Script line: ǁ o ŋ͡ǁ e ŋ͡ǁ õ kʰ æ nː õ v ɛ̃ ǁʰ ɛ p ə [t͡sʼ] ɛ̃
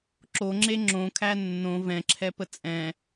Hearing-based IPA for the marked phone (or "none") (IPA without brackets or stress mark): t͡sʼ